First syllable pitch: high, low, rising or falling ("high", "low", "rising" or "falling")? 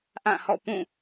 falling